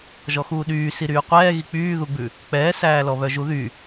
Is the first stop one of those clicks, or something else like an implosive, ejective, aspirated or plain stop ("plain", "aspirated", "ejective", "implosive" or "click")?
implosive